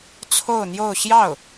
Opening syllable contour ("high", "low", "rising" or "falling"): falling